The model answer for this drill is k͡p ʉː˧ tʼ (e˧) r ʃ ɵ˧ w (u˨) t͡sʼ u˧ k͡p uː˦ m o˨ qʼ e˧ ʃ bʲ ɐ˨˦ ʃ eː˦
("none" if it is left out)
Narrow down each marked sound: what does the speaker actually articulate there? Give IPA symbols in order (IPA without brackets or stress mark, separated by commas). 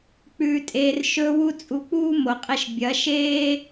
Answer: eː˧, u˧